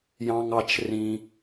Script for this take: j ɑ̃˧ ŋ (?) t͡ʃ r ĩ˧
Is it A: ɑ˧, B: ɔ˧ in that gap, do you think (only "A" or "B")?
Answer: A